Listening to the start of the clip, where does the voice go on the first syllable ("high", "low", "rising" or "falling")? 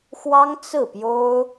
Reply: high